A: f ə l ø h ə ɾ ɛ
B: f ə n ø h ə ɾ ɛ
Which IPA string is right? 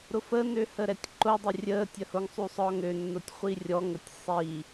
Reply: B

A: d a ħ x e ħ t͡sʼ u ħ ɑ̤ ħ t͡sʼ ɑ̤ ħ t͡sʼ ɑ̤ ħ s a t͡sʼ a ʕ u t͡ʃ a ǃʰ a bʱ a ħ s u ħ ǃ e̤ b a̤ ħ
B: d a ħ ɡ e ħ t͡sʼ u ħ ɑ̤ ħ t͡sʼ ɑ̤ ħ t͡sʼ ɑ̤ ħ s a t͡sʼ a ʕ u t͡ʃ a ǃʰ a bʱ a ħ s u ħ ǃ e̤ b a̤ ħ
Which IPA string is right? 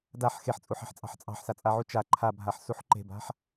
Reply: A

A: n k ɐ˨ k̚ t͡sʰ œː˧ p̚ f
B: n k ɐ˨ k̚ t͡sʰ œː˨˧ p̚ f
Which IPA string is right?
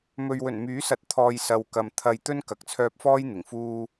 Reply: A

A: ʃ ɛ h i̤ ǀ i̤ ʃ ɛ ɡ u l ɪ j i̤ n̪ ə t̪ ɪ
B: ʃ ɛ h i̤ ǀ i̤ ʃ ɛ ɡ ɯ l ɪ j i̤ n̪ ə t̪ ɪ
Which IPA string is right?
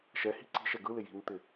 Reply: B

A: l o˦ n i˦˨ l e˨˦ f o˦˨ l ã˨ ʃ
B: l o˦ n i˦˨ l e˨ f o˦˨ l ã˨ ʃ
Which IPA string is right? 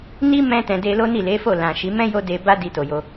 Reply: A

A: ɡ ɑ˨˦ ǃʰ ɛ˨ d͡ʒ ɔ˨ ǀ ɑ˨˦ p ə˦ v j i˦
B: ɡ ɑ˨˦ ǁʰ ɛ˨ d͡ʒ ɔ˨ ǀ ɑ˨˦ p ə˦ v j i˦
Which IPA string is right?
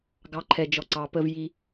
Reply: A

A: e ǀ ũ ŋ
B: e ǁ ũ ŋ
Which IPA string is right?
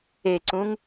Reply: A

